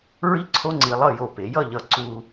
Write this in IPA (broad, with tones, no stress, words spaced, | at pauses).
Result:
ɹi˥ǀʰo˥ ŋ͡ǀi˧lˠʌ˥˧ jo˧˩pe˩˧jʌ˥˧ʎʌ˧˩ ǀu˧